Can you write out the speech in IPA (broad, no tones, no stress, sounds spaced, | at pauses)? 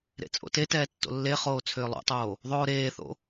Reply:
ɾ ḛ t͡sʼ o̰ t e t ɛː tː o̰ lː e χ oː t͡sʰ ʏː lˠ o̰ tˤ oː | ðˤ oː ɾ eː θ o̰